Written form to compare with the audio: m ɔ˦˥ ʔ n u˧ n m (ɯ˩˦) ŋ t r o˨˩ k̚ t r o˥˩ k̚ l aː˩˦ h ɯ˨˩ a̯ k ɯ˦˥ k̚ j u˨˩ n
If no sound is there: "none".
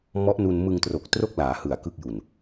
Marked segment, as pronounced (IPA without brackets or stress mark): ɯ˧